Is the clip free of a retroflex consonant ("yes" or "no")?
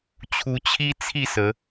yes